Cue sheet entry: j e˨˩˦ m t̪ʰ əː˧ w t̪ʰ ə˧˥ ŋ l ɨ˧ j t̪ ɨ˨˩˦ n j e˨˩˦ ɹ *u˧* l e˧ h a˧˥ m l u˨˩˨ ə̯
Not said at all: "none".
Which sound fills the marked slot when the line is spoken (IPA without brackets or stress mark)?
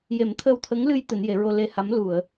o˧